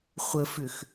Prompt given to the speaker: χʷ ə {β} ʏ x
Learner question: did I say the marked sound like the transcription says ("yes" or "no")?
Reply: no